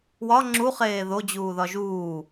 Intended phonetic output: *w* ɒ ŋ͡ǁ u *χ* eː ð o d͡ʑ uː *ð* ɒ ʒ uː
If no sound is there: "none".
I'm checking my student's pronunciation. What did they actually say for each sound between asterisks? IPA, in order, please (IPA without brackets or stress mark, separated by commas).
w, χ, ð